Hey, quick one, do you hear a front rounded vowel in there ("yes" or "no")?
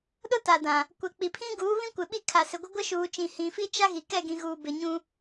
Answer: no